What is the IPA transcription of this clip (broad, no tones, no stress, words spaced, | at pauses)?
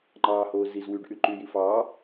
ŋ͡ǃɑːhoː ziz wyɖʔy ǃyji fɑː